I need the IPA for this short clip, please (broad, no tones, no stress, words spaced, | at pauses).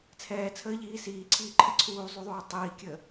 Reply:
t͡sʰɛːt͡sʰəːʎiː siːǀʰiːǃʰɛ ǀʰuːzˤuðˤuː tˤiːkʲəː